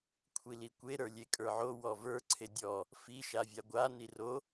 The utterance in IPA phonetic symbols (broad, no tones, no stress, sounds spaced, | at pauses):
kʷʰ i l i kʷ e ɾ ə˞ lʲ e kʼ ə˞ ʕ o w ɔ v ə˞ ǀʰ e dʲ ɔ | f i ʃ a vʲ a ɡʷ a n i r o